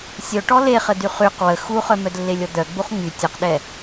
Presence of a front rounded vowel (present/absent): present